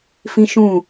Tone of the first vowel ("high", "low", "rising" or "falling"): high